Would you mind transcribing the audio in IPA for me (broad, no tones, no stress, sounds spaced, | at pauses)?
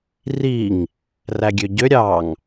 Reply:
r i ŋ | r æ ɡʲ ø ɟ ø ɾʲ ɑ ŋ